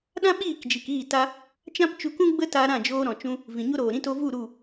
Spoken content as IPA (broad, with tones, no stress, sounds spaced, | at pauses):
ɗ ã˦ ɓ iː˦˨ k d͡ʒ i˨ k iː˦˨ t a˧ | t͡ʃ ã˦ p t͡ʃ u˧ k ũ˦ ɡ͡b ə˦ t a˧ ɾ ã˦˨ d͡ʒ oː˧ ɾ ɔ̃˨ t͡ʃ ũ˧ | v ĩ˨ ɲ o˦ ɾ oː˨ ɾ ĩ˦ t o˧ v u˦˨ ɾ u˦˨